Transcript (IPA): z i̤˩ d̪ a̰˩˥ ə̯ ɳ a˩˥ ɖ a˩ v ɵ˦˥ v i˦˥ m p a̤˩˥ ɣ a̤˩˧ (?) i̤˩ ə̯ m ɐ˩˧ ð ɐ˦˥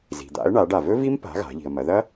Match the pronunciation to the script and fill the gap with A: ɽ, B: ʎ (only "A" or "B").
B